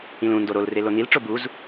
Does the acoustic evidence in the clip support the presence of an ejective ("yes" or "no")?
no